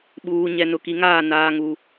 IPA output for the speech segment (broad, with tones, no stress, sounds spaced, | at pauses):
ɓ uː˨ ɲ ɛ˨ n ʊ˨ k i˨ ŋ aː˦˨ n aː˦ ŋ u˦